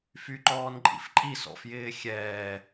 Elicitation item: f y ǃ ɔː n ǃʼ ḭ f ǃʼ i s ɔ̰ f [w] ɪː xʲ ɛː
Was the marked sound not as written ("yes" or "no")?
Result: yes